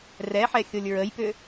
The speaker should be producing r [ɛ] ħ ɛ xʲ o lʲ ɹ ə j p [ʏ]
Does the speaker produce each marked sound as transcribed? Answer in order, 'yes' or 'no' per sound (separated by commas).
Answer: yes, yes